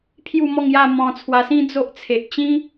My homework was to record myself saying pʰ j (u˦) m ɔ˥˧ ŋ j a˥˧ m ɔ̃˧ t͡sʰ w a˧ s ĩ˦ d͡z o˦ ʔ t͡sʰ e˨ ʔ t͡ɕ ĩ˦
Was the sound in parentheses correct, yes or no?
no